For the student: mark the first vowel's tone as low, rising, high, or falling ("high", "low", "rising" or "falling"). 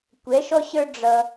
rising